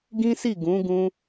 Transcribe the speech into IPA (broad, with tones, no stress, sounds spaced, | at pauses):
ɡ ĩ˦ s i˦˨ ɡ ũ˨˦ ɡ ũ˦